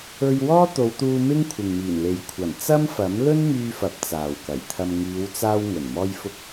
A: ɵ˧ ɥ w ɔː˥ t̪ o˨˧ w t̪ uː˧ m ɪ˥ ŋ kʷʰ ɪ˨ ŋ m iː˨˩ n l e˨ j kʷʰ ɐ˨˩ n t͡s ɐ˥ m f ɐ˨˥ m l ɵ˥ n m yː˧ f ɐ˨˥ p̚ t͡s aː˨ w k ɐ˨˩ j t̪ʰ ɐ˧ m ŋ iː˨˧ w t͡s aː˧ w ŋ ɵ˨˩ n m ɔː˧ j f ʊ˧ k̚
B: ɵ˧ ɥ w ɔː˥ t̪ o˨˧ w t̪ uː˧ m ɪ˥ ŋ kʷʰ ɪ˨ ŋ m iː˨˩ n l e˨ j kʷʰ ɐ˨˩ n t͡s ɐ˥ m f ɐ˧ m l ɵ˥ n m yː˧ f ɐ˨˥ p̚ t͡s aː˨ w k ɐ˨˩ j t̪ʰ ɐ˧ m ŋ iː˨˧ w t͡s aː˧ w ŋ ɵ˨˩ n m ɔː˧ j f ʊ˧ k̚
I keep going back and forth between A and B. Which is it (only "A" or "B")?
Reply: A